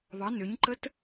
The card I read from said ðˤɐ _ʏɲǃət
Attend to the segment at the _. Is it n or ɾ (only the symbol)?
n